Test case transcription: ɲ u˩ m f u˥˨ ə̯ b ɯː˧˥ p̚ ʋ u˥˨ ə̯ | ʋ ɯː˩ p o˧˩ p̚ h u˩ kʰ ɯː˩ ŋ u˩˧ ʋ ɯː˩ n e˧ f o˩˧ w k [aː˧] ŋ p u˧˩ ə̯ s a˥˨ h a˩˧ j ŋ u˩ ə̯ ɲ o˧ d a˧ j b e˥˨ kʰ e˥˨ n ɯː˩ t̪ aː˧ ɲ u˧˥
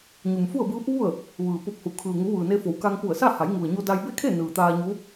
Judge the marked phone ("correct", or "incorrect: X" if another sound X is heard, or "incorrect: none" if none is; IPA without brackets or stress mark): incorrect: a˧